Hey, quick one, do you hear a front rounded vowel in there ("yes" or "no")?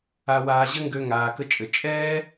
yes